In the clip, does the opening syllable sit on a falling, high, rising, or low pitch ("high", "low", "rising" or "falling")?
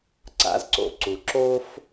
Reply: high